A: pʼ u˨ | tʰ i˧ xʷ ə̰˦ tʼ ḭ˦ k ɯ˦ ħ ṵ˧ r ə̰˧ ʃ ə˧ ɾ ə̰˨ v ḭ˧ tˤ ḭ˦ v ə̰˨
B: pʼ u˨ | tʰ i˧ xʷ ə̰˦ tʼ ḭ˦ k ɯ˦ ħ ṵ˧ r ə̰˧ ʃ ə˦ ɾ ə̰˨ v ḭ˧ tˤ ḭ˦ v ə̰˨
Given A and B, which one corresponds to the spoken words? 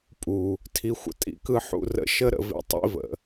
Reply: B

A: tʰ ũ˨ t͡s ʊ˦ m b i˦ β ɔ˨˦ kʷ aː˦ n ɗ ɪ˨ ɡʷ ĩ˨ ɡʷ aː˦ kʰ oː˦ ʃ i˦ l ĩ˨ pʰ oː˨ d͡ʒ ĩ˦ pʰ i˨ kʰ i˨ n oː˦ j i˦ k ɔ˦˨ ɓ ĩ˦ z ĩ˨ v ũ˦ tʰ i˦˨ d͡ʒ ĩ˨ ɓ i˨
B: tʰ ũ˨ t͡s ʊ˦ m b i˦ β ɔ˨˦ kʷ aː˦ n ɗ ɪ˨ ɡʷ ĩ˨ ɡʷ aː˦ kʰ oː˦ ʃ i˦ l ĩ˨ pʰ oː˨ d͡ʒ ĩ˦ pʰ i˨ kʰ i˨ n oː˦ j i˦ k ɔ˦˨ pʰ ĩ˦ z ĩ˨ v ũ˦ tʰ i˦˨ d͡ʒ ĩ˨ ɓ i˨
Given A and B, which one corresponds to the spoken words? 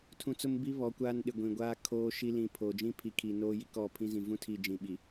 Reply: B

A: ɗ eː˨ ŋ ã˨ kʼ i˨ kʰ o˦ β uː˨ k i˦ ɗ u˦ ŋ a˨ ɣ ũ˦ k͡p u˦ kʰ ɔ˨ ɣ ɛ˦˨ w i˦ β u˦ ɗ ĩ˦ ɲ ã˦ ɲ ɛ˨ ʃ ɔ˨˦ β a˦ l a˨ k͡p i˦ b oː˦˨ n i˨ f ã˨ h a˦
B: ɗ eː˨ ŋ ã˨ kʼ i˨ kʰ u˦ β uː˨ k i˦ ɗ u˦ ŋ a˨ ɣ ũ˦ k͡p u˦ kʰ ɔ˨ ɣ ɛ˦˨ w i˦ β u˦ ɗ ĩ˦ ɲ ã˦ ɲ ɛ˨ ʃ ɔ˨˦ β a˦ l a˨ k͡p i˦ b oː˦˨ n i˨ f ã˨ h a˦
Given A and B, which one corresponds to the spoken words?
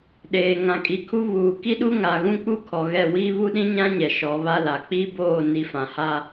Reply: B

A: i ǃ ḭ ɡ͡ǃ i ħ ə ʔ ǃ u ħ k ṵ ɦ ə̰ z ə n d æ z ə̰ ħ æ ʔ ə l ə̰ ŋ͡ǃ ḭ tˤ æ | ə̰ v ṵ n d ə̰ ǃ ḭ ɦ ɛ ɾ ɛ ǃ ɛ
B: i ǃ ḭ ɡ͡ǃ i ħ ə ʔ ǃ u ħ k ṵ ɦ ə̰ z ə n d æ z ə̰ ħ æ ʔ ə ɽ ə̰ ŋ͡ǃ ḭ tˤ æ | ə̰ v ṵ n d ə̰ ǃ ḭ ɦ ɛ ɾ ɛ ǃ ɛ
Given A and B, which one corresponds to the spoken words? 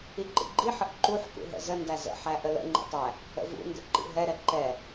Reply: A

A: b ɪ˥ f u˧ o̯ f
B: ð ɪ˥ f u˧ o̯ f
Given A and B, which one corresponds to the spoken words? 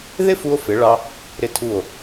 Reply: B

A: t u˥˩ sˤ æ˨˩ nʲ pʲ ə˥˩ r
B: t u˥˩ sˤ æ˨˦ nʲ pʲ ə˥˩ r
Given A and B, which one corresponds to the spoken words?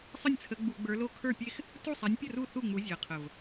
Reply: B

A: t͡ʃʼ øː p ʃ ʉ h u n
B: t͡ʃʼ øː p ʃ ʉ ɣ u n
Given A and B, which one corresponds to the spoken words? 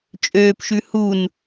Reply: A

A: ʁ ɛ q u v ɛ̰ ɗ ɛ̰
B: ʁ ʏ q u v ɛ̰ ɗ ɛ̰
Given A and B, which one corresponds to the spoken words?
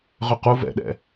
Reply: B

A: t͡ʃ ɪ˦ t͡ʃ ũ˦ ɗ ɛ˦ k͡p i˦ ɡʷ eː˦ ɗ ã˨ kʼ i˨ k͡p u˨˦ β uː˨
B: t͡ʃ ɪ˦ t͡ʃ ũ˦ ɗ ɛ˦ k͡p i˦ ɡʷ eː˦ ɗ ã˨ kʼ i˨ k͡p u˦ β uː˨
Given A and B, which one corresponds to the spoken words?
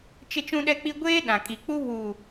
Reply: B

